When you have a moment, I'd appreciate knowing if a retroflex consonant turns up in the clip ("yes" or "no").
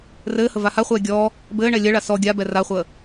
yes